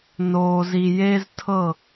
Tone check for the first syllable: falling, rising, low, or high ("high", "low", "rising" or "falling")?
low